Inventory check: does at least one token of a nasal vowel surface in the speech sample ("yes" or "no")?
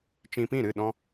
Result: yes